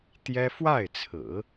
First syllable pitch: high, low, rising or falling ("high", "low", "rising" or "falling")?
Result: high